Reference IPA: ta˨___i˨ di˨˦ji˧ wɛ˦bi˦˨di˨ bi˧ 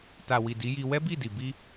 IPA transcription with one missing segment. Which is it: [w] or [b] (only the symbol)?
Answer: w